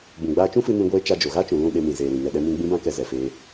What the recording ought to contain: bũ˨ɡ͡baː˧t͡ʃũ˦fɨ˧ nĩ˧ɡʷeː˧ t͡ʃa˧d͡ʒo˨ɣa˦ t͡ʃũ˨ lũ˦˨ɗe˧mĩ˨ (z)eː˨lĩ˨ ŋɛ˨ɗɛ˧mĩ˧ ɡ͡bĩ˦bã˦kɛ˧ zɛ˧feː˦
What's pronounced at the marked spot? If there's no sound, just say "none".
z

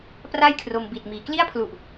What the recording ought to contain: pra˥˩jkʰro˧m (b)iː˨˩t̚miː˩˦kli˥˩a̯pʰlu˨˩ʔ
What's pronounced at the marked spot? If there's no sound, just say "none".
b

